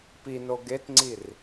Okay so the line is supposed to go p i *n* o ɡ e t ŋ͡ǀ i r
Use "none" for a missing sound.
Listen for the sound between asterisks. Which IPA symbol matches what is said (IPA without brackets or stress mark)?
n